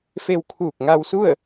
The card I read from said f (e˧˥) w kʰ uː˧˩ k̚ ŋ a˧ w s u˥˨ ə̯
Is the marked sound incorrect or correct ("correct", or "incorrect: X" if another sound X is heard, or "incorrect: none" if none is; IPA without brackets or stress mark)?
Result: incorrect: e˧